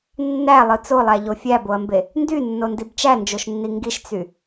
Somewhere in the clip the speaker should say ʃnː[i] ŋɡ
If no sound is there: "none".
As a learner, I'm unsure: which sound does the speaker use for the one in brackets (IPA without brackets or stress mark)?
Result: i